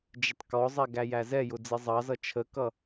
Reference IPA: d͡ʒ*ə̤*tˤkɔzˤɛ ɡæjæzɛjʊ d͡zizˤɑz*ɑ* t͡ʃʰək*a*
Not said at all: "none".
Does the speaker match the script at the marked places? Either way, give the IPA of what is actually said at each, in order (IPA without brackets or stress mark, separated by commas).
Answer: ə, ʌ, ʌ